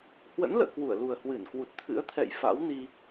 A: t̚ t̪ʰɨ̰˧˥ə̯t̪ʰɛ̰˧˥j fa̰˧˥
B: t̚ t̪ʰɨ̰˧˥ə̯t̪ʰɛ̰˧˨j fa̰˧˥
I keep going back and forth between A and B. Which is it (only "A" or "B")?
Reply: B